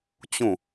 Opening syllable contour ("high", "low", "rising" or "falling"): falling